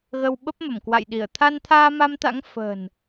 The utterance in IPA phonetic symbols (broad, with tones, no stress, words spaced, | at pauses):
ɣə˧wɓə˦˥p̚mə˧˩mkwa̰˧˨j ɗi˧˩ə̯ t̪ʰa˧nt̪ʰaː˧ma˧mt̪a̰˧˥ŋ fə̤ː˨˩n